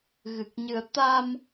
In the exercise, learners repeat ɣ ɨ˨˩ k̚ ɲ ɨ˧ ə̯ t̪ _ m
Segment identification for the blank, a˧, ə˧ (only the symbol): a˧